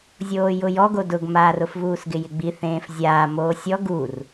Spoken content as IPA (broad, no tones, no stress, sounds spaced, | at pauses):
zʲ oː j ʊ j ɔ ɡ o d ʊ ɡ m aː r ʊ f v uː s ɡ ɪ j ɪ ɡ͡b i θ ẽː f zʲ aː m oː sʲ ɔ ɡ u r